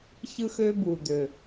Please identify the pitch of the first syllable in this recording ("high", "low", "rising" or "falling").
high